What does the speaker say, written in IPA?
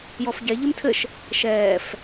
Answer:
j ɔ f ɟ ɛ ʎ ɘ m tʰ ɘ ʃ | ʃ ɛː f

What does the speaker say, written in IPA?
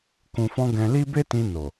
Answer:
k ũ˨ f ɔ̃˧ ɡ ɛ̃˧ l i˦ b e˦ t ĩ˧ n o˨

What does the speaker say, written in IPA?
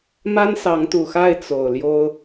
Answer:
m a˦ n s ɑ˨˦ ŋ t̪ u˨˩ x a˥˨ ɪ̯ t͡s o˨˩ ʊ̯ l j o˦ ʊ̯

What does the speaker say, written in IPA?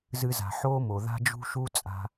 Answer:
z ɨ˧ z a̤˨ ħ oː˦ m o˨ ð a̤˧ d͡ʒ ṳ˧ ʃ u˧ t͡sʼ a̤˧

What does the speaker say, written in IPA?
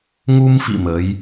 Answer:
ŋ u˧ m f ḭ˧˨ m ə˨˦ j

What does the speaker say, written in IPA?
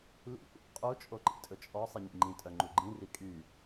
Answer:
l ḭ ʔ ṵ qʼ u t͡ʃʼ o ǃ ḭ tʼ ɵ t͡ʃʼ ɔ sˤ i ɲ ḭ ŋ͡ǃ ĩ tʼ œ ŋ͡ǃ u ɡ͡ǃ ĩ r i kʼ y

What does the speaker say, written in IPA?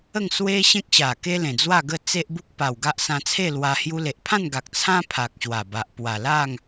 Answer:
ə˥˧ ŋ s w e˦ ɕ ẽ˦ k̚ ɕ a˨˩ k e˦ l ẽ˨˩ d͡z w a˥˧ ɡ ə˥˧ t͡s e˦ ʔ b u˦ k̚ p a˨˩ w ɡ a˦ ʔ s ã˧ t͡sʰ e˥˧ l w a˧ h j u˧ l e˨ ʔ pʰ ã˥˧ n ɡ a˨ k̚ t͡sʰ ã˦ pʰ a˨ k̚ ɕ w a˨˩ b a˨ ʔ p w a˨˩ l a˥˧ ŋ

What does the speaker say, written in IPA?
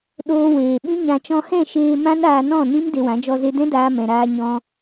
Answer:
ɗ oː˧ w eː˨ ɓ ĩ˦ ɲ ã˧ t͡ʃ ɔ̃˧ h ɛ̃˦˨ ʃ eː˧ m ã˦ n aː˧ n ɔ̃˦˨ n ĩ˦ m d e˧ w ã˨˦ d͡ʒ ɔ˧ z e˧ d ɛ̃˦ d aː˧ m ɛ̃˨ ɾ aː˧ ɲ ɔ̃˧

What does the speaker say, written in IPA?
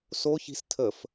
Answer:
s o ç i̤ s tʰ ə f

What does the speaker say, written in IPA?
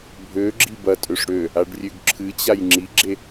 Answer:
bʱ ø ɡ͡ǁ i b ɐ tʼ ø ʂ ɽ ø | a ɖ rʲ ø ɡ ǁʰ ɨ t͡ɕ a j ŋ͡ǁ i ɡ͡ǁ e

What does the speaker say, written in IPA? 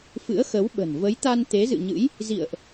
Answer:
f ɨ̰˧˥ ə̯ x ə˨˦ w ɓ ə̤˨˩ n v ə˨˦ j t̪ a˧ n t̪ e˨˦ z ɨ̰˧˨ ɲ ɨ̰˧˥ j | z ḭ˧˨ ə̯ ʔ

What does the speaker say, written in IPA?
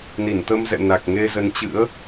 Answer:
n i˧˩ n t̪ ə˧ m z ɛ̰˧˨ n a˨˩ k̚ ŋ e˧ z ə˨˦ n t͡ɕ ɨ̰˧˥ ə̯

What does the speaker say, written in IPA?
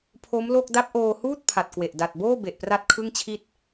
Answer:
pʰ o˦˥ m l o˥˩ k̚ d a˦˥ p̚ ʔ oː˧ h uː˥˩ t̚ pʰ a˨˩ t̚ k w e˨˩ ʔ d a˨˩ t̚ b oː˥˩ b e˨˩ ʔ p r a˥˩ t̚ kʰ ɯ˥˩ ŋ t͡ɕʰ i˥˩ t̚

